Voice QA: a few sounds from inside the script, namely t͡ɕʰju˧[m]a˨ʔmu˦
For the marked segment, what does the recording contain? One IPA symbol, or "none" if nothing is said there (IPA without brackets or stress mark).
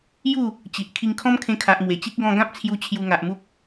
ŋ